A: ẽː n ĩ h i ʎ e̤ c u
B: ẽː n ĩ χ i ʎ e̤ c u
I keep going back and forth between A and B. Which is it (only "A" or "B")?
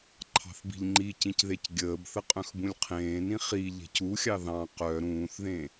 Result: B